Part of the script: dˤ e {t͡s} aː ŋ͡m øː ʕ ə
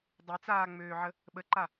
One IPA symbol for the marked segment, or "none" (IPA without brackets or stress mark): t͡s